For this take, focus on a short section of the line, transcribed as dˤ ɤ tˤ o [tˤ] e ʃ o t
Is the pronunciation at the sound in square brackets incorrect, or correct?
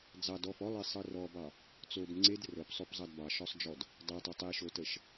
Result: correct